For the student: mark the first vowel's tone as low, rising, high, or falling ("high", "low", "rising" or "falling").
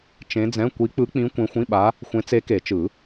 rising